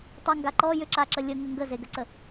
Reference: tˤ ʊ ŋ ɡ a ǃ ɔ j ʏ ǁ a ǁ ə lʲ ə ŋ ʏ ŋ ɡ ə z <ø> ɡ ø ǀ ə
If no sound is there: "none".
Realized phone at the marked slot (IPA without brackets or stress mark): e